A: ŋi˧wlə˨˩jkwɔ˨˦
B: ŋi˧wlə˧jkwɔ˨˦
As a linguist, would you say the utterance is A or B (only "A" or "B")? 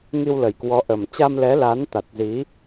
A